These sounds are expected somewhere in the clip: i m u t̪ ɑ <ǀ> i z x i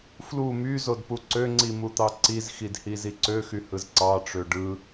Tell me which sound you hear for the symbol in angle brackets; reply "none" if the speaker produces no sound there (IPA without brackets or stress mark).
ǀ